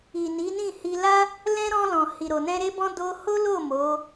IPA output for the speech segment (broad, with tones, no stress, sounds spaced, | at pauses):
i˨ n i˨˦ n ĩ˦˨ h i˧ l a˦ | l ɛ̃˦ ɾ ɔ̃˧ l ɔ̃˨ h i˨ ɾ o˨ n ɛ̃˧ ɾ e˦ b ɔ̃˦ d o˧ h o˦ l o˦˨ m o˨˦